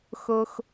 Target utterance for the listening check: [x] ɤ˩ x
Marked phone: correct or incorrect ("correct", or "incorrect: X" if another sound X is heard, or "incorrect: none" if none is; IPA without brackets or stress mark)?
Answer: correct